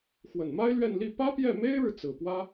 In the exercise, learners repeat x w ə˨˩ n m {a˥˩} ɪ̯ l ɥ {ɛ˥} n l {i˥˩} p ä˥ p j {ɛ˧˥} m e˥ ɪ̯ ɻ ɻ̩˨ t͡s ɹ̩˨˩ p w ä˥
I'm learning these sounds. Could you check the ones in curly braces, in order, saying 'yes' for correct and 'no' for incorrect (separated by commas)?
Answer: no, no, yes, no